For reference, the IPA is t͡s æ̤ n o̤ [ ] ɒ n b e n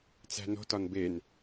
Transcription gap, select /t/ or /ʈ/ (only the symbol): t